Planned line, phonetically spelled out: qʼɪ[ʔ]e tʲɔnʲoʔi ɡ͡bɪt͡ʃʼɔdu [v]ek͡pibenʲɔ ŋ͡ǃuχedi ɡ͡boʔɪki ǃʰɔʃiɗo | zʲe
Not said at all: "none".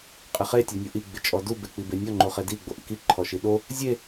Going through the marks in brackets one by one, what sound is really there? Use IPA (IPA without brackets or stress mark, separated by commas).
χ, b